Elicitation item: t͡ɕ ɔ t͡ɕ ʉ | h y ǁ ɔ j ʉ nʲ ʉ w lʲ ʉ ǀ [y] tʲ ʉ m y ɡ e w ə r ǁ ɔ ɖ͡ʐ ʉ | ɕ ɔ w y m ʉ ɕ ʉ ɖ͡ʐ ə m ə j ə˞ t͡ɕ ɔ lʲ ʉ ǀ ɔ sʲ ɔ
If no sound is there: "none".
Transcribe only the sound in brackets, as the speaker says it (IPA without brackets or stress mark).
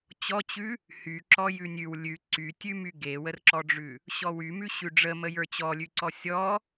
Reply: y